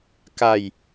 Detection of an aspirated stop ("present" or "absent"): absent